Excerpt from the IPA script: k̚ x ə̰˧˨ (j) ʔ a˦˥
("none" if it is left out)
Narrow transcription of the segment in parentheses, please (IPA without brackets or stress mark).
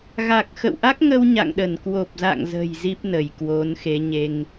w